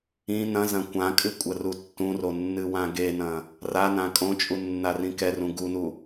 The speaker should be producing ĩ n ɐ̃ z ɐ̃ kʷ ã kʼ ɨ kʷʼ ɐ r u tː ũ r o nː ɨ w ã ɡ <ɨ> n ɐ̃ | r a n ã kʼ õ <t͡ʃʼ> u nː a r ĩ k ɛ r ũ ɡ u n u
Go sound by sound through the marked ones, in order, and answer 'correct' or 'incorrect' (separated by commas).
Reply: incorrect, correct